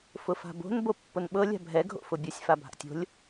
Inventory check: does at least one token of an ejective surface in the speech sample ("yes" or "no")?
no